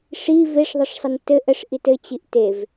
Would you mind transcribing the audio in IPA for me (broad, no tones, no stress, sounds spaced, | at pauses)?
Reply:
ʂ i v e ʂ ðˤ ə ʂ sˤ ə n t ɘ ʔ ə ʂ ʔ i t ɘ t͡ɕ i ʔ t e v